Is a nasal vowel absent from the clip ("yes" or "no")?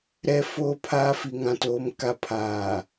no